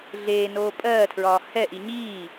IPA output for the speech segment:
ɮ eː n oː pʼ ɜː tʰ ɹ ɒː h ɛ ʔ i ɲ iː

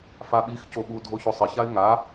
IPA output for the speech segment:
f a ɓ i x c o ɓ u dʱ o ç o sˤ ɪ ç a ɪ̯ ŋ a

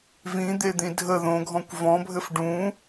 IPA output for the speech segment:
v ĩ d̪ e d̪ ĩ dʱ ə ð õ ɡʱ ɔ̃ kʷ v ɔ̃ bʱ ɘ f ɖ ũ

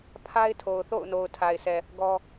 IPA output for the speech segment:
pʰ a˦ ɪ̯ tʰ o˨ ʊ̯ θ o̰˦˨ ʊ̯ n o˨ ʊ̯ tʰ a˨ ɪ̯ sʰ ɛ˨ | ɡ ɔ˦

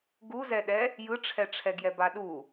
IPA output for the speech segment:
ɡ u z ɛ ɗ ɛ | j ɯ ʈ͡ʂʰ ɛ ʈ͡ʂʰ ɛ ɡ j ɛ b a ɗ u

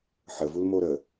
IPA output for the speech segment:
ħ ə v u l m o ɾ ə

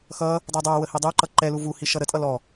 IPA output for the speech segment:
x ʌ | dˤ ɛ dˤ æ w ə h i dˤ u ǃ ʌ ǃ ɛ l u v u h i ʃ ʌ ɾ ə tʼ ʌ l ɔ

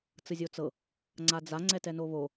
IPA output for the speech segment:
t͡s ɯ zʲ o t͡s ɤ | ŋ͡ǀ a d͡z a ŋ͡ǀ ɛ t ɛ n o β o

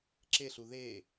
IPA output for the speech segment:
ǁ e ɬ u ð e

